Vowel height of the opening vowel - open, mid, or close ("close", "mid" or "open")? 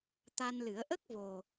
open